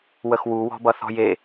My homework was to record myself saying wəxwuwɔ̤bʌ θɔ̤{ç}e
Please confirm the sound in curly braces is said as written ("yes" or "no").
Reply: no